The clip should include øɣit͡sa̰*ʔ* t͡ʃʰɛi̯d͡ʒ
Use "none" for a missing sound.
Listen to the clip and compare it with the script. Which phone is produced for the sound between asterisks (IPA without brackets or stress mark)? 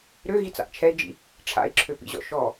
ʔ